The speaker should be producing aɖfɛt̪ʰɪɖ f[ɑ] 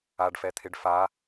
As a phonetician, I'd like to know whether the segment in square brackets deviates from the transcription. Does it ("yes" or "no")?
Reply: yes